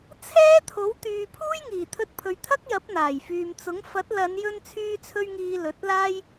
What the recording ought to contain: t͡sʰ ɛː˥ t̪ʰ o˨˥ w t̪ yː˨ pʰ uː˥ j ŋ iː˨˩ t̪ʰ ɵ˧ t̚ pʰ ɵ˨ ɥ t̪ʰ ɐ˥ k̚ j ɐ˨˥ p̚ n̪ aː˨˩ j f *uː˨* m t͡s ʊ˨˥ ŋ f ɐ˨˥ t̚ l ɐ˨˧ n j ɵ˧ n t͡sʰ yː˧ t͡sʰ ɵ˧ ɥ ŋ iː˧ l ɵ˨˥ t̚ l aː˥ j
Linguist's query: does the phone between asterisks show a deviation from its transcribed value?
yes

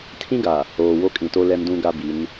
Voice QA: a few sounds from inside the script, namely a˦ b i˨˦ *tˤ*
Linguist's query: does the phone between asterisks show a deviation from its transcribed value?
yes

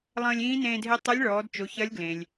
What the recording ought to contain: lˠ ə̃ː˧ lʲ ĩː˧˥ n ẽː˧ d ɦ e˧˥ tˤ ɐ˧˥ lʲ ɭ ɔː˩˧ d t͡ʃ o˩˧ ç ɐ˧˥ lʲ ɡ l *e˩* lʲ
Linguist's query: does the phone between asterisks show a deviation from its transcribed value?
yes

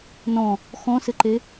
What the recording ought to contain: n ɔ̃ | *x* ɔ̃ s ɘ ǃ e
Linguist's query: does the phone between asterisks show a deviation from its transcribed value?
no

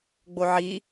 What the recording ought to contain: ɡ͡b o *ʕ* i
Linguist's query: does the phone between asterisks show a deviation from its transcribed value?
no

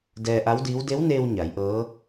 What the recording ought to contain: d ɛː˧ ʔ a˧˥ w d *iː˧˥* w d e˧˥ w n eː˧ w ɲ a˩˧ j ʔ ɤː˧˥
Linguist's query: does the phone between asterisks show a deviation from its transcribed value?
no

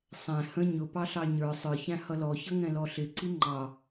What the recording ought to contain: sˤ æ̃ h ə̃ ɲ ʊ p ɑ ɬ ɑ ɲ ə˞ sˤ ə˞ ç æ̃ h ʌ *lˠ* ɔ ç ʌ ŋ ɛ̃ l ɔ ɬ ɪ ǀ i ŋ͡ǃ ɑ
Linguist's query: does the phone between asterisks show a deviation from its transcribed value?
yes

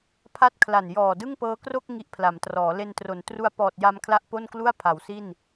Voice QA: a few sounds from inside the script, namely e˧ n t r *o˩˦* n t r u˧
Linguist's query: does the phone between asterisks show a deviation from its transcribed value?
no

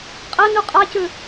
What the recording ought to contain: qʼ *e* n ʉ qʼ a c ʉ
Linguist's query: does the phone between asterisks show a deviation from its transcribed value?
yes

